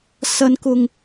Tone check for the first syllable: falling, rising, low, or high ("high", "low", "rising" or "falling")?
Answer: high